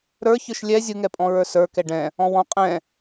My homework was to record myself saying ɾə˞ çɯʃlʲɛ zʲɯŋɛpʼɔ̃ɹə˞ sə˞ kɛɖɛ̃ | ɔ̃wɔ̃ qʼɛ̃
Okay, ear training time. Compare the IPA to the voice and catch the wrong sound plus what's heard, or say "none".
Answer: none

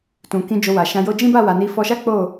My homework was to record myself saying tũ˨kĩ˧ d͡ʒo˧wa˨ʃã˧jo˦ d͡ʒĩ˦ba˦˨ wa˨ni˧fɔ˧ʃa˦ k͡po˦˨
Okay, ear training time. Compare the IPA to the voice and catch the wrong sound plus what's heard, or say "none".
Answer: none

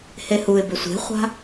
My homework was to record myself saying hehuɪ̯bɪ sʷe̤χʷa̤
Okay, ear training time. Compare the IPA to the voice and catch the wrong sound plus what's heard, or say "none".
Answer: none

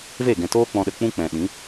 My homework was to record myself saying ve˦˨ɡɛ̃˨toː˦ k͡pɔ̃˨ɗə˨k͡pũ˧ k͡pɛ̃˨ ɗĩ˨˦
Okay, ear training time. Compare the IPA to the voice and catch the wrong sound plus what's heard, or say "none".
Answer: none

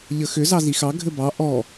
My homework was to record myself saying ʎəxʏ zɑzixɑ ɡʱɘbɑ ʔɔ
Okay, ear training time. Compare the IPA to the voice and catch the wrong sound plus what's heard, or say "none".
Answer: none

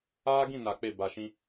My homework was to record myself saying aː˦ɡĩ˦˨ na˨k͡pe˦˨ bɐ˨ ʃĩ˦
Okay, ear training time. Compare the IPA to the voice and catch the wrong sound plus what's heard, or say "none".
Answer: ɐ˨ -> a˨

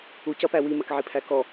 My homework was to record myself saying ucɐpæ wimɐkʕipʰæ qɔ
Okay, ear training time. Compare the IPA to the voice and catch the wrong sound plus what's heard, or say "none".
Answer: q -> k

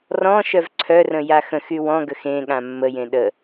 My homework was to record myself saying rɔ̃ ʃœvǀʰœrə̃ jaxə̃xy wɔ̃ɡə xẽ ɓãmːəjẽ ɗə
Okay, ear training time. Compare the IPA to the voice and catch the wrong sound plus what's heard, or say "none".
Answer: ɓ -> ɠ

